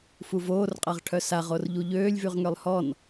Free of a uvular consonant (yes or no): no